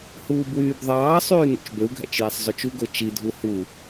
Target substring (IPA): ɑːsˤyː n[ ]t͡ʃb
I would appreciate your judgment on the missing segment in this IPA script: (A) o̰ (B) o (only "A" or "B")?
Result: A